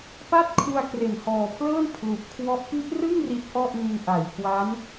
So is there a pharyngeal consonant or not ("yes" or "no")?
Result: no